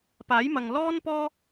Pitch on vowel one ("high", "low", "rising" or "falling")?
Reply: rising